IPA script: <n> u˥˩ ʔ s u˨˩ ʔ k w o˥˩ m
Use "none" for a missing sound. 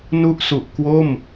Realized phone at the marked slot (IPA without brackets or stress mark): n